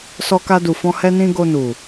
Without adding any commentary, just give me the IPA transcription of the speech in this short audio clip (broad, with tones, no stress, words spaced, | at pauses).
sɔ˧ka˧du˨fɔ̃˧ hɛ˧nĩ˧ ɡo˧nu˨